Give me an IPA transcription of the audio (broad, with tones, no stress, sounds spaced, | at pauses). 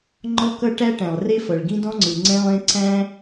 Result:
ŋ͡ǃ ɔ˥ k ʌ˥ ʈ æ˥ ʈ æ̃˩ lˠ r e˥ f ʌ˩ ɭ ɡ ĩ˥ d ɔ̃˥ ŋ͡ǀ ɯ˩ ŋ͡ǀ ɛ̃˥ lˠ ẽ˥ ǀ æ̃˥